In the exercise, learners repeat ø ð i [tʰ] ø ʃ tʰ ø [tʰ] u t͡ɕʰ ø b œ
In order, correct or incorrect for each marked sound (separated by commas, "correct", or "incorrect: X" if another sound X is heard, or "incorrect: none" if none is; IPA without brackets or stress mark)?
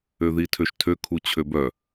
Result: correct, incorrect: kʰ